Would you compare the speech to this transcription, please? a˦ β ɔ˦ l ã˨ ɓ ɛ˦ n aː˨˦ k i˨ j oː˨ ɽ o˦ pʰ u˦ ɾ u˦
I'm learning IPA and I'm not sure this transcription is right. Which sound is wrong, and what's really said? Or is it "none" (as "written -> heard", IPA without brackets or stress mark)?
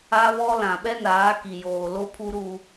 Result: ɽ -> l